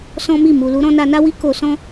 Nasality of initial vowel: nasal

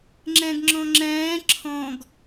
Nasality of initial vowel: nasal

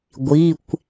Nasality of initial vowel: oral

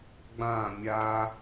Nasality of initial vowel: nasal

